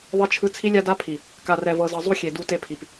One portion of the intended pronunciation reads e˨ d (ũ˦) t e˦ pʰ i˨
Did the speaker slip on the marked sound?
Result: yes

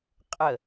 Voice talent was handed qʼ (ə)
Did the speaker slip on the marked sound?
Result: no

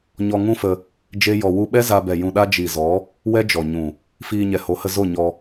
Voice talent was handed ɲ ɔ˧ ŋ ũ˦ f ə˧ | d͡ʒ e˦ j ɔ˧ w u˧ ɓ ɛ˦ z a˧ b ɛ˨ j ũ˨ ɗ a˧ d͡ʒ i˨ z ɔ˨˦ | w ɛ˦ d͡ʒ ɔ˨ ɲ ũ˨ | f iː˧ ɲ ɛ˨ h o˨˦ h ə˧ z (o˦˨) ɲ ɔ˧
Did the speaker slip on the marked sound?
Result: no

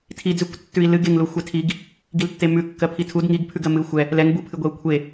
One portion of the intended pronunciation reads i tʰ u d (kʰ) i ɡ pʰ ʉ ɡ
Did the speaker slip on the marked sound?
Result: yes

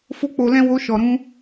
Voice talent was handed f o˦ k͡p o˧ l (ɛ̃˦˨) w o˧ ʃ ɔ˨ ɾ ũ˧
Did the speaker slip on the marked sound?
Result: yes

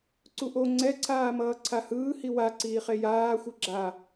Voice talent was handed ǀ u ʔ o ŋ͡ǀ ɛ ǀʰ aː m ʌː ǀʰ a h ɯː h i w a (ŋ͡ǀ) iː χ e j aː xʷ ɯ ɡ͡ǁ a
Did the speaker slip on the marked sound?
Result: yes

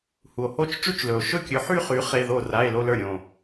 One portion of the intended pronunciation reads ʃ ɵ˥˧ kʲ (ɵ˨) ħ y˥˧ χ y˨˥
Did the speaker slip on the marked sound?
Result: yes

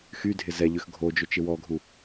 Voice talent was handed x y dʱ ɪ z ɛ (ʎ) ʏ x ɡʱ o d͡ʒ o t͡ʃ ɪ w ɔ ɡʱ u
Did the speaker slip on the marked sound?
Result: no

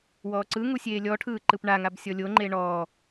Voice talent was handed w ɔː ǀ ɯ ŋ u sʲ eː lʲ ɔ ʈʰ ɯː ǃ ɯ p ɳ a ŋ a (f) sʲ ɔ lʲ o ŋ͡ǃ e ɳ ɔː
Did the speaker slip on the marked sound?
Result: yes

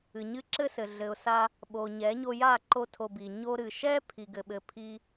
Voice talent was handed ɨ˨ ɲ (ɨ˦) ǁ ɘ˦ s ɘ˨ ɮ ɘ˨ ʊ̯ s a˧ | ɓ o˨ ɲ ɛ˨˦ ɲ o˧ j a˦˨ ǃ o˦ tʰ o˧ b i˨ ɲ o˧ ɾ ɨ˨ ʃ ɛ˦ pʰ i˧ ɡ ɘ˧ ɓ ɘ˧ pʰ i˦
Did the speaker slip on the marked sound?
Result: no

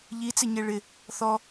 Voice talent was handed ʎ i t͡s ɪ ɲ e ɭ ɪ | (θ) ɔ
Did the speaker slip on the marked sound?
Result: no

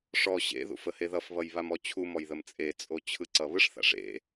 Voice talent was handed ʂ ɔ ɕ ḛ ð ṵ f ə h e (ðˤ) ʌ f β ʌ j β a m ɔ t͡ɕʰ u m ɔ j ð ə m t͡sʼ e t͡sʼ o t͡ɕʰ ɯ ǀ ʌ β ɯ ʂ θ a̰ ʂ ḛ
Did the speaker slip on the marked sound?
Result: yes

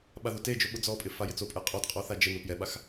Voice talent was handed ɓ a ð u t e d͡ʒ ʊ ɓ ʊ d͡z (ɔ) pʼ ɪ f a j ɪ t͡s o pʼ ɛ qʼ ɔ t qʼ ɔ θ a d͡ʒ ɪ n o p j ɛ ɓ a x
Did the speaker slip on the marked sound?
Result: no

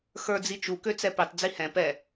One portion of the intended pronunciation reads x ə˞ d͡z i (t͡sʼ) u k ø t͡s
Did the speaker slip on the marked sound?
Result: yes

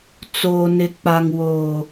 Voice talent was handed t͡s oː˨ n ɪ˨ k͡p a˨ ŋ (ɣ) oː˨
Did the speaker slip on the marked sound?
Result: yes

